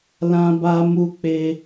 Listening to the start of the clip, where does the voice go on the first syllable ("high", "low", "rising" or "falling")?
high